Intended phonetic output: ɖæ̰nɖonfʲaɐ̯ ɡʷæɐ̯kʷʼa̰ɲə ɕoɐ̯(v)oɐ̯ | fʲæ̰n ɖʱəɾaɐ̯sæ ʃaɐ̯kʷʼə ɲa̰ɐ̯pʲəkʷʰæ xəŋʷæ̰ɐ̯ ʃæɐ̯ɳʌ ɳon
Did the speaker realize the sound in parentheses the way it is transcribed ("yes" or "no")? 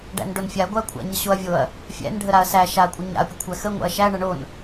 no